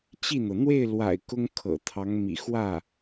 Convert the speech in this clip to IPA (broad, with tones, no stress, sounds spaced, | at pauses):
t͡ɕ i˥˩ n̪ ɤ˩ n̪ w e˥˩ ɪ̯ l w a̰˨˩ ɪ̯ k ʊ˥ ŋ kʰ ɤ̰˨˩ t̪ʰ ɑ˧˥ ŋ m ḭ˨˩ x w ä˥˩